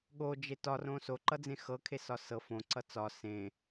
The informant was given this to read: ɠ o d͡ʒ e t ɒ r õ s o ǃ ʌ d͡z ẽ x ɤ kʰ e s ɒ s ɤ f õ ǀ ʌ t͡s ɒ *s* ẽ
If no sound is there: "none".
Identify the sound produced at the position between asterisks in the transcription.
s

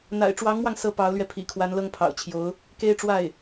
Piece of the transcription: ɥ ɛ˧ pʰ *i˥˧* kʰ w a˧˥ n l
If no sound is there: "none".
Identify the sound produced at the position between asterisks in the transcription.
ḭ˨˩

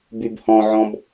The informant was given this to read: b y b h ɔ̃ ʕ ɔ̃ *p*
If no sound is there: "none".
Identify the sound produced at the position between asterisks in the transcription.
b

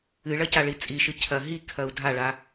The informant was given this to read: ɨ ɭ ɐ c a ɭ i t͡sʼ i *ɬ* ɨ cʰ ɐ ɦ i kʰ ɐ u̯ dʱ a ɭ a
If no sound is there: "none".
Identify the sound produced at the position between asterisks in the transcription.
ʃ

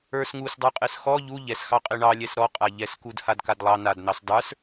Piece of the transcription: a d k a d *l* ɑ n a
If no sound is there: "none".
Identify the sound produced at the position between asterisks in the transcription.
lˠ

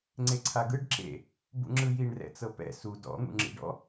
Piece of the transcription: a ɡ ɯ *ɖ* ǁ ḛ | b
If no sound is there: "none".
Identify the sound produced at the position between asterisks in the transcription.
ɖ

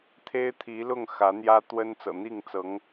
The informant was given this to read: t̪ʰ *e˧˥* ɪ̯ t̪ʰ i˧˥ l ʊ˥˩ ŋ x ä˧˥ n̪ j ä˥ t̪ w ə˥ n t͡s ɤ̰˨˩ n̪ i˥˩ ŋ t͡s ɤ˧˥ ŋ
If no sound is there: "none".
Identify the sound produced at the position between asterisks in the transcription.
e˥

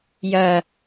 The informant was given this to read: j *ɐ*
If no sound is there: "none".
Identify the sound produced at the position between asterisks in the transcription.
ɐ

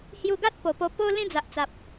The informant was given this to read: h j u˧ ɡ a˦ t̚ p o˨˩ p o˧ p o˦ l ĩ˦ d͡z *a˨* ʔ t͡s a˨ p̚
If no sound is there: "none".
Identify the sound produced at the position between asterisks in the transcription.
a˨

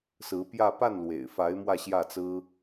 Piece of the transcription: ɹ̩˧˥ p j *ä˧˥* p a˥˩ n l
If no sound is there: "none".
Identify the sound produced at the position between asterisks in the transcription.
ä˥˧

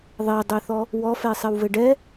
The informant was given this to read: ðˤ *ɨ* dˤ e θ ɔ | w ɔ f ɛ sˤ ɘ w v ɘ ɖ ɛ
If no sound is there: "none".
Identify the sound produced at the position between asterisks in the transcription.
e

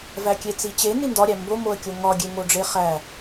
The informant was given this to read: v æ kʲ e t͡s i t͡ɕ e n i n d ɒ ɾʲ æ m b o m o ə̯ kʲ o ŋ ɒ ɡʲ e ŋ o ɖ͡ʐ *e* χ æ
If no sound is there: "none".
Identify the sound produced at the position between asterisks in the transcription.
e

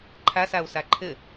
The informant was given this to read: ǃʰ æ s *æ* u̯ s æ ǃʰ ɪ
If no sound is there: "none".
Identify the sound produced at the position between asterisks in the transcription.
æ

